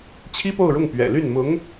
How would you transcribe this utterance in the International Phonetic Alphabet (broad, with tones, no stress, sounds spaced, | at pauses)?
t͡ɕʰ i˥ p o˥˧ ʊ̯ ɻ ʊ˥˩ ŋ p ɥ ɛ̰˨˩ l y˥˩ n m ʊ˧˥ ŋ